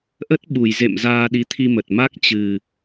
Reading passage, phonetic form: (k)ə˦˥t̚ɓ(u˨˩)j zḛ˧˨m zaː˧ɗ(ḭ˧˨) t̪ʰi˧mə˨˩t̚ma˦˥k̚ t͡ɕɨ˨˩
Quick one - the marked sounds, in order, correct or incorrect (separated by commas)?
incorrect, correct, incorrect